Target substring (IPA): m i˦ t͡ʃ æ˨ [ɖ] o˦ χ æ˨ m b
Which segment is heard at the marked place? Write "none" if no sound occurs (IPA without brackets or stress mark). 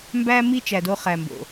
d